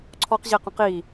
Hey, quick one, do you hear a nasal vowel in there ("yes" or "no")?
yes